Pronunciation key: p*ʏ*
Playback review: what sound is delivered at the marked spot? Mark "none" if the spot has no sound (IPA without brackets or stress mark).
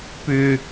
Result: ʏ